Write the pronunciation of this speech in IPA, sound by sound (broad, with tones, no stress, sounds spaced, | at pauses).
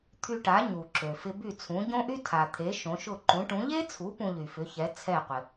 t̪ʰ y˧ ʈ a˩˥ ɲ u˩ ǁ ø˩ f ɪ˧ b y˥˩ t͡sʰ ũ˩˥ ɟ õ˥ ʔ y˥ tʰ a˩ t̪ʰ e˩˥ ʃ õ˩˥ ʃ ʊ˥˩ ǃ ũ˩˥ ʈ ũ˩˥ ʎ e˥ t͡sʰ u˩˥ p ũ˧ ʎ y˩ f ʏ˩˥ ç ɛ˩˥ t͡sʰ ɛ˥˩ qʷ ɪ˩